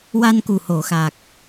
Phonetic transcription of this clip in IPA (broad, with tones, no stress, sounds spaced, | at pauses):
w a˧ n k u˨˩ h o˨˩˨ x a˨˩ k̚